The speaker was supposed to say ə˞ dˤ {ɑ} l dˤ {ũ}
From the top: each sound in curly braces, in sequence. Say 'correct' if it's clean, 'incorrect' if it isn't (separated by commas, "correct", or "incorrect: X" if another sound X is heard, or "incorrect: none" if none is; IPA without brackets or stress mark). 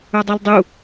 correct, incorrect: u